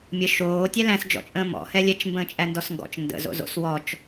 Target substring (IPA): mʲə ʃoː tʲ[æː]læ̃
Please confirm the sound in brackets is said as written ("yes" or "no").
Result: no